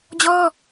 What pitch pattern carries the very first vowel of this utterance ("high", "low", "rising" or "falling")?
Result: high